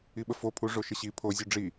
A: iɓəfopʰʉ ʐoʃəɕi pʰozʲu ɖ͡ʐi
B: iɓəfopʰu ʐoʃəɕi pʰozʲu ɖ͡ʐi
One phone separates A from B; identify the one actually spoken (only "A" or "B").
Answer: B